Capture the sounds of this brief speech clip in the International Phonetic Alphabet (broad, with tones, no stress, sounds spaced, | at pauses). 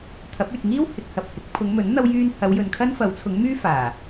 t̪ʰ ɐ˨˥ p̚ yː˨ t̚ ŋ iː˥ w h ɪ˨ k̚ h ɐ˨ p̚ h ɪ˨˥ k̚ pʰ ʊ˨˧ ŋ m ɵ˨˥ n n̪ ɐ˧ w j yː˧ n h ɐ˨˧ w j ɵ˨ n kʰ ɐ˥ n f ɐ˨˥ w t͡sʰ ʊ˨˥ ŋ m yː˥ f aː˨˩